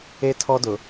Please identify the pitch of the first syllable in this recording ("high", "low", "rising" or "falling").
high